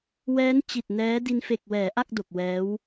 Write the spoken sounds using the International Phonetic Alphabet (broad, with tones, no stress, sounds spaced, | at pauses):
w ɛː˦˥ n t͡ɕ i˨˩ t̚ n ɛː˦˥ d i˧ n f e˨˩ k̚ w ɛː˩˦ ʔ a˥˩ k̚ d o˨˩ k̚ w ɛː˦˥ w